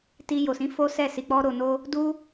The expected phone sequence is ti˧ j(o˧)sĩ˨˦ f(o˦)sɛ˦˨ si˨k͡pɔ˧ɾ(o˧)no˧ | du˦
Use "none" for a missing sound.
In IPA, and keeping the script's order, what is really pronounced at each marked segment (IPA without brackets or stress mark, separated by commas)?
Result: o˨, o˦, o˨